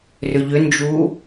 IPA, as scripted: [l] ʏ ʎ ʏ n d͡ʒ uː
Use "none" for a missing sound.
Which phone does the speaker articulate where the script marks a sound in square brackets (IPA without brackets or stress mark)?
r